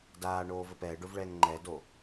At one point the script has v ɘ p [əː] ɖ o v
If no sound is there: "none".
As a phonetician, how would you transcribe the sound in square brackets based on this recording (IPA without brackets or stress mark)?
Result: ɛː